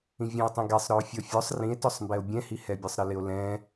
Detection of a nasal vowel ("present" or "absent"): present